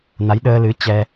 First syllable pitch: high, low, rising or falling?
rising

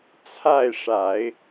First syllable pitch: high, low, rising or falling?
falling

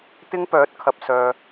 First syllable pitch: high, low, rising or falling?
high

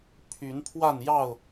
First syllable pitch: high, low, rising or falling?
rising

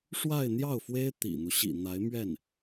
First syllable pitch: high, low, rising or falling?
falling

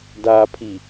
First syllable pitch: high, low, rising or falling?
low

